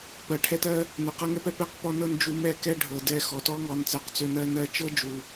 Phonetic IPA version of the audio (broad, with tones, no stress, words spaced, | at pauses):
pɜ˨ʈʰɛ˧tɜ˧ | nø˨qɤ˧ŋɛ˦pɛ˧ pɛ˦˨qpɔ˧nɤ˧n d͡ʒu˧mɛ˦˨kɛ˦ ɖʱɤ˨dɛ˧xɔ˨ tɔ˦ŋɔ˨˦nt͡sɜ˨q t͡sø˧nɜ˧ nɜ˧t͡ʃɤ˦ d͡ʒu˨